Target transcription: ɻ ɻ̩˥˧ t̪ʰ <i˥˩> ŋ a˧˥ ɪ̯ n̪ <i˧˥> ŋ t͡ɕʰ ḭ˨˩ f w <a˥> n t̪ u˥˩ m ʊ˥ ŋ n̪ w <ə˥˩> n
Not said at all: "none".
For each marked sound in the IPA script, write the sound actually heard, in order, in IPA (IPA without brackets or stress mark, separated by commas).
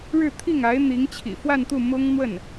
i˥˩, i˧˥, a˥˧, ə˥˩